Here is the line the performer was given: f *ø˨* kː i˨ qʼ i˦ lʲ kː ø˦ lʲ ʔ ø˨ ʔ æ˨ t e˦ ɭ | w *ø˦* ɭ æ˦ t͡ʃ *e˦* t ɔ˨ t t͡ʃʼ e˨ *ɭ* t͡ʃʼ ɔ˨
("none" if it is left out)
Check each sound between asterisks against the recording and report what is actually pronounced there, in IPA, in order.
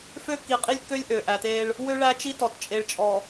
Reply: ø˦, ø˦, i˦, ɭ

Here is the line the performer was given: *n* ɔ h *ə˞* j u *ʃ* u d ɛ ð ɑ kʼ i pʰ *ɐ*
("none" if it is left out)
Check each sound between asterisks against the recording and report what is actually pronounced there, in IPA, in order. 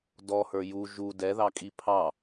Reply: d, ə˞, ʒ, ɑ

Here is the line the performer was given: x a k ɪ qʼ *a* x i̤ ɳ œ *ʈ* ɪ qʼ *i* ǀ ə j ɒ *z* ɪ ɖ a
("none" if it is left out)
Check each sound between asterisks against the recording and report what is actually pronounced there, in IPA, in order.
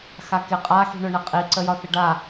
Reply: a, ɳ, i, θ

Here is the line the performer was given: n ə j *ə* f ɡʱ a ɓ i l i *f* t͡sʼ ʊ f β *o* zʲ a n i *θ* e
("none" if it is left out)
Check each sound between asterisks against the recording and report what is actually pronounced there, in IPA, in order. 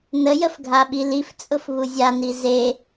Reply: ə, f, u, z

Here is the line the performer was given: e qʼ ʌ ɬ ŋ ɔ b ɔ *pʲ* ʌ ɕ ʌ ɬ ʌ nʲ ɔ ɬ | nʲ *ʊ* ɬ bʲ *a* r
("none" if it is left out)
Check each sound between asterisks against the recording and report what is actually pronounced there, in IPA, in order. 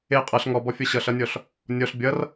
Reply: fʲ, ɔ, ʌ

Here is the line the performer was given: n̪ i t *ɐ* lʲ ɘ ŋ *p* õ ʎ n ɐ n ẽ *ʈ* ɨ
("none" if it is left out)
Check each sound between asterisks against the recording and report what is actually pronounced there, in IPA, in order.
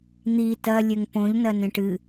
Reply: ɐ, p, ʈ

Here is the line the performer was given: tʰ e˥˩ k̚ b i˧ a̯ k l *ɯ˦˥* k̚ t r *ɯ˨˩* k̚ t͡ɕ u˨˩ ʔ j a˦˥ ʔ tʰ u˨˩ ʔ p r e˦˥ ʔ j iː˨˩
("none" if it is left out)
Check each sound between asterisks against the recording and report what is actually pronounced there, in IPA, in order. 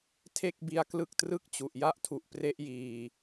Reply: ɯ˦˥, ɯ˥˩

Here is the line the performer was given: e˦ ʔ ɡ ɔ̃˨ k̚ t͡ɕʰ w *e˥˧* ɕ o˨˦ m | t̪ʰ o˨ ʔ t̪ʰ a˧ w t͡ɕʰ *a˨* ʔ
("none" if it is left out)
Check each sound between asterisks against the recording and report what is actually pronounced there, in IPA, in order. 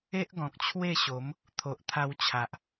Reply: e˥˧, a˨

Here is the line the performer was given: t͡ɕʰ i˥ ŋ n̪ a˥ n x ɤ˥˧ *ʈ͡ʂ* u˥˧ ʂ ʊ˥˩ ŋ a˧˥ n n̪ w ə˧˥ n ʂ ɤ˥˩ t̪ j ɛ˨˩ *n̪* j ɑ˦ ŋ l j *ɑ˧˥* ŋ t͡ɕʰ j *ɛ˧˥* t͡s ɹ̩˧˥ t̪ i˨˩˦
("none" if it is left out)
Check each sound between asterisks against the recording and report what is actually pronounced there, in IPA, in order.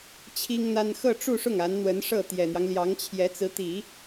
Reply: ʈ͡ʂ, n̪, ɑ˧˥, ɛ˧˥

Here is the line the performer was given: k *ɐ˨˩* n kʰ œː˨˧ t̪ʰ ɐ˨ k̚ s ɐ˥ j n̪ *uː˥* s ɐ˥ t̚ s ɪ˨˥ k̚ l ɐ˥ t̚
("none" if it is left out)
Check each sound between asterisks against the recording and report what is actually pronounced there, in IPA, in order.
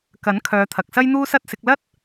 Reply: ɐ˨˥, uː˥

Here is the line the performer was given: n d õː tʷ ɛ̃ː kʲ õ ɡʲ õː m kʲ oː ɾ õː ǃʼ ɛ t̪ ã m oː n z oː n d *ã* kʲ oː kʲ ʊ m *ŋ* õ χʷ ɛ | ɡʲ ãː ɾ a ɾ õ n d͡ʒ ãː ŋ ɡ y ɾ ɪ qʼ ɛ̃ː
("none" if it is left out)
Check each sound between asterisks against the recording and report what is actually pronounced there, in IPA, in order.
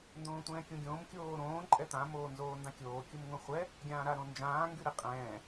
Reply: ã, ŋ

